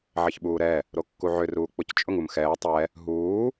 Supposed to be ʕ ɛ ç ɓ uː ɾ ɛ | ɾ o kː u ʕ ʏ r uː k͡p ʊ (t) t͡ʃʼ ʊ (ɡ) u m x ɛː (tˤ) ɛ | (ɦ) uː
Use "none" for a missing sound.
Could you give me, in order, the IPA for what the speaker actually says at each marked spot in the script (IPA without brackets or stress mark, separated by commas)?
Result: c, ŋ, tˤ, ɦ